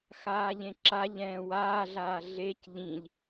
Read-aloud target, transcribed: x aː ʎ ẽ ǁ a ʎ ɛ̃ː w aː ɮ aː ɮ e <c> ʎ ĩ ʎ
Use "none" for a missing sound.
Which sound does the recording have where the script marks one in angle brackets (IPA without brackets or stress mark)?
c